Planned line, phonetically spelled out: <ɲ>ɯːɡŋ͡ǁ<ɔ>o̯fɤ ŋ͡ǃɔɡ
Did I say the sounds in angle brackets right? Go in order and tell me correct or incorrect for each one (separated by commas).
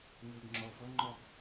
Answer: correct, correct